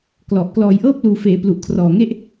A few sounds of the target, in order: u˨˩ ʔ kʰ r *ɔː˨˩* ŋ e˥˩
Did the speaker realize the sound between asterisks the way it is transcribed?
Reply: yes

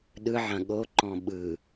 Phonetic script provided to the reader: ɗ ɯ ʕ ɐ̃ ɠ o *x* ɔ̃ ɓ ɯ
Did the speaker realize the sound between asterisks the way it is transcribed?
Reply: no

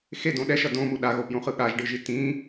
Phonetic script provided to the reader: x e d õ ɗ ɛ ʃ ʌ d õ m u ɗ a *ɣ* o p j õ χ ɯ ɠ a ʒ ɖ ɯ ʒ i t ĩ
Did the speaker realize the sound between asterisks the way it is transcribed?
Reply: yes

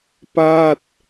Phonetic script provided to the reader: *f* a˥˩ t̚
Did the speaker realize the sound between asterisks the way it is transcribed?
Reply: no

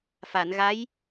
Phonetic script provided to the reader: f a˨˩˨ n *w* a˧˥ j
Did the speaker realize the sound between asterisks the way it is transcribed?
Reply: no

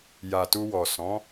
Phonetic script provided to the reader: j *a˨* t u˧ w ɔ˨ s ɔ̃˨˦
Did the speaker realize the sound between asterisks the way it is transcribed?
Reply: yes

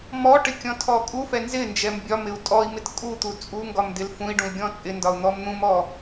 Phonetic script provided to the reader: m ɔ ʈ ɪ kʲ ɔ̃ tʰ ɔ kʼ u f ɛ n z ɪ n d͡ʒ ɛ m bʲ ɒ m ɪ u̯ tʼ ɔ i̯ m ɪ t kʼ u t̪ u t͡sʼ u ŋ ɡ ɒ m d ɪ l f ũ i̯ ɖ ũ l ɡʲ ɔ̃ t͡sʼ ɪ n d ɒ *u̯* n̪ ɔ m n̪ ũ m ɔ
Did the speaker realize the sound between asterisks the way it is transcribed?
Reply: yes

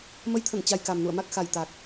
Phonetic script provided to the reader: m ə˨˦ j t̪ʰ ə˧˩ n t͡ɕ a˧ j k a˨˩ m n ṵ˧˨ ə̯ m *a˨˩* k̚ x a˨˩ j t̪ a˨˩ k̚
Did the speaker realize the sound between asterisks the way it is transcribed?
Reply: no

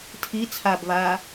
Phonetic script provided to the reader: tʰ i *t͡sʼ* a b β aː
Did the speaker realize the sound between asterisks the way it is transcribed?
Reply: no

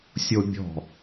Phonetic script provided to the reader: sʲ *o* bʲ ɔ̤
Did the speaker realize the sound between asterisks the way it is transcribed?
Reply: yes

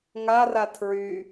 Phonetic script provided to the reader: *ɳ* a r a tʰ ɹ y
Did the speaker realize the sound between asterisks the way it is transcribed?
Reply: no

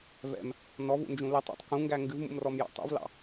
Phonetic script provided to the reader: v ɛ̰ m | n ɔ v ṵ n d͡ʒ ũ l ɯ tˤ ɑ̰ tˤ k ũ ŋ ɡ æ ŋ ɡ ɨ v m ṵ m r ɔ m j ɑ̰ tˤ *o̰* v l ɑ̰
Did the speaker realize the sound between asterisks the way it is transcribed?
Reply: no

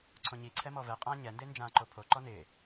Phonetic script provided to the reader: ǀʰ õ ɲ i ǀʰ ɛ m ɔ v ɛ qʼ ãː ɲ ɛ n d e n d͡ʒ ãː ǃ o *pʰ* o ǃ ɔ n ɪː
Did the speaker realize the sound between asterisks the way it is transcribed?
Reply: yes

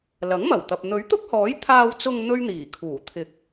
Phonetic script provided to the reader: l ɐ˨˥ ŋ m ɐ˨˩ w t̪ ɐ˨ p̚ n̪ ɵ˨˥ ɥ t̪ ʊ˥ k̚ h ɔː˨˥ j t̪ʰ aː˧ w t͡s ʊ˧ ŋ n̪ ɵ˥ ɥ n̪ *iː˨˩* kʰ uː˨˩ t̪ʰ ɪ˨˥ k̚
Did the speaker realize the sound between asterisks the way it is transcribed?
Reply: yes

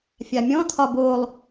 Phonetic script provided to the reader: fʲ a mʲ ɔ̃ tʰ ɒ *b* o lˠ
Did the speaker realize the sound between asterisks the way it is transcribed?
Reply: yes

